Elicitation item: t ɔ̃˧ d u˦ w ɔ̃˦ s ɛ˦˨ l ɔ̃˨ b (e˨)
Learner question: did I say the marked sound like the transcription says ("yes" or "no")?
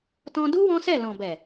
no